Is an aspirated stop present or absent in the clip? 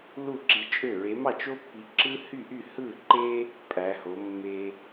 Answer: absent